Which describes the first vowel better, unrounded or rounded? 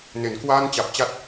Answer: unrounded